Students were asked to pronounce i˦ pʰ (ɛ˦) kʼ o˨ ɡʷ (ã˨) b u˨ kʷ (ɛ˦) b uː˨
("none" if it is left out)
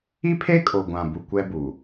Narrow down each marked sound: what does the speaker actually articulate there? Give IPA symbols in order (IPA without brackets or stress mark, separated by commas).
e˦, ã˨, ɛ˦